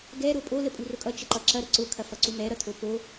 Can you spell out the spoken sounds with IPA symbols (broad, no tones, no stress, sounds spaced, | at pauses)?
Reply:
ɡ ɛ ɾ o pʼ o l ə pʼ u r ʊ kʼ ʌ t͡ʃ ə ǃ ʌ ǁ ɐ ɾ ə ǀ ʊ kʰ ɐ f ʌ ǀ u m ɛ ɾ ʌ tʰ o p o